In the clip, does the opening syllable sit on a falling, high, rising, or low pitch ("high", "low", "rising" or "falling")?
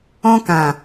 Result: high